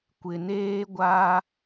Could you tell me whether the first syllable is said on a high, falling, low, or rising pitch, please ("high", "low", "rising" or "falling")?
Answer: low